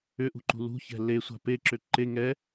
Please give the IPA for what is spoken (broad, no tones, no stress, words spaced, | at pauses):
ʏʔṳǃṳ lṳçɛ̤ lesʷa̤ peǁʏ ǃe ŋɛ